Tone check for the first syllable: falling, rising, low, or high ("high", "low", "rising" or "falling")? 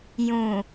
low